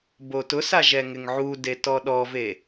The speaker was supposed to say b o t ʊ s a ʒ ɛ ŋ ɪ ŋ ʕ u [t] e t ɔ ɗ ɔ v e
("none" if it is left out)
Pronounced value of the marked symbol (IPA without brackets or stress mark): d